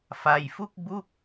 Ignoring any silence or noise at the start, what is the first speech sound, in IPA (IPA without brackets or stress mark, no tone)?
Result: f